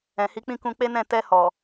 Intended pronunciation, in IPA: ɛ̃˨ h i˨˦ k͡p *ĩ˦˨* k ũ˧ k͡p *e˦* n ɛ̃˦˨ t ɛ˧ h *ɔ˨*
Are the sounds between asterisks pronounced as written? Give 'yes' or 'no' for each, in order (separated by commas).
yes, yes, yes